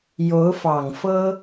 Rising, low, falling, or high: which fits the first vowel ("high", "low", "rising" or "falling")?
rising